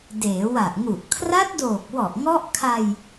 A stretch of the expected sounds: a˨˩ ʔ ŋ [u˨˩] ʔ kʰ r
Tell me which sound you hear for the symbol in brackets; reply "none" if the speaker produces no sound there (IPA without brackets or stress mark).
u˨˩